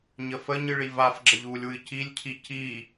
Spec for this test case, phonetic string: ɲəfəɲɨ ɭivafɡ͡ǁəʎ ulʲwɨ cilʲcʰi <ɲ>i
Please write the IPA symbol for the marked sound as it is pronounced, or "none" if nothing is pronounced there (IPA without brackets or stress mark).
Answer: c